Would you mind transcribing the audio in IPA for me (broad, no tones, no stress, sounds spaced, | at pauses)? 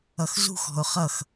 ʌ x z ṳ x ɔ̤ ʊ̯ χ ʌ x